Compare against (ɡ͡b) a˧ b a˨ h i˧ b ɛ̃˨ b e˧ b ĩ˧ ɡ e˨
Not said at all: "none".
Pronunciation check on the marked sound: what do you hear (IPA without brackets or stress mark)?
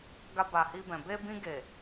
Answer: ɡ